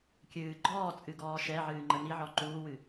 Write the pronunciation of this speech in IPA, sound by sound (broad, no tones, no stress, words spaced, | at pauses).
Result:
kʲɨː ɡ͡ǃɔː t͡sʼɨɡɔːʃɛʕɨː ŋ͡ǃəniʕɔ ǃuːwɨ